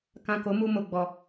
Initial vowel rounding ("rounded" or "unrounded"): unrounded